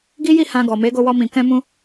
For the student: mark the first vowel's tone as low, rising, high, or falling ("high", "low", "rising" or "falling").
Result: high